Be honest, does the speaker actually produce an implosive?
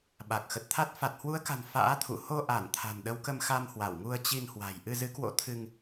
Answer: yes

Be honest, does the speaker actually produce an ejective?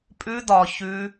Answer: yes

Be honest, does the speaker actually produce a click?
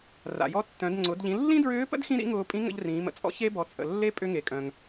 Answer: yes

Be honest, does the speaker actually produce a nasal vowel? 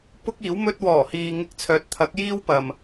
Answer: no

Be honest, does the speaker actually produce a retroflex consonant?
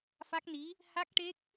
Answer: yes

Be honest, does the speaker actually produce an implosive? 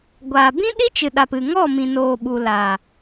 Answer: yes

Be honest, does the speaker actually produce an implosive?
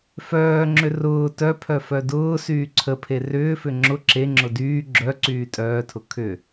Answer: no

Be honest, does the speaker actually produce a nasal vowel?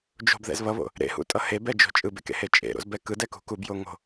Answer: no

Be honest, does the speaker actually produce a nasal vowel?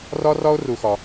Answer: no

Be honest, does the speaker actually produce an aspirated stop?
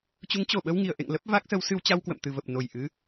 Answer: no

